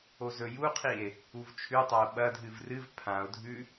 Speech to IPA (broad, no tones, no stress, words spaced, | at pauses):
ozɵjuqʰie̯ | uvt͡ʃʰʉtˤao̯ ɓɐdʱɨv rɨv pʰão̯dʱʉ